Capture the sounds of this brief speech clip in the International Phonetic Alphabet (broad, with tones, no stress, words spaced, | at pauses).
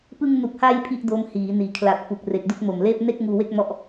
pɯ˧ŋnu˨˩k̚ha˧j pʰi˥˩ʔdo˦˥mhiː˩˦ niː˩˦kʰla˨˩t̚ fu˨˩k̚re˨˩k̚ du˥˩k̚ mo˨˩mleː˥˩p̚ ne˥˩k̚ ŋuː˧we˥˩k̚ mɔ˦˥ʔ